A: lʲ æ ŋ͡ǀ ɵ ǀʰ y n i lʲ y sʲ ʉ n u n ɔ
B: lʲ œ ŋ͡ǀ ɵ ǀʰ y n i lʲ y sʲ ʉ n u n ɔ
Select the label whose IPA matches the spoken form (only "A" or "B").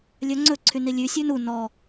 B